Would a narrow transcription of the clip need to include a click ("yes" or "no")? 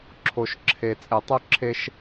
yes